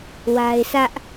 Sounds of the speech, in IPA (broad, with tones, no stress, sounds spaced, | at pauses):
w a˦ ɪ̯ sʰ ä˦ ʔ